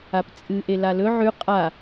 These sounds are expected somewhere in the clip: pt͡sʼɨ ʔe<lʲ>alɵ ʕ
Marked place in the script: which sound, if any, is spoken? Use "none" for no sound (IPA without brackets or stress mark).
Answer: l